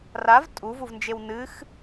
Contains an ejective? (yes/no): yes